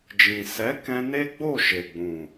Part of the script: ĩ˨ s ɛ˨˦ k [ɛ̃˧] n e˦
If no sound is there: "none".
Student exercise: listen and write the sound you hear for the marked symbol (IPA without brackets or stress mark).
ɛ̃˧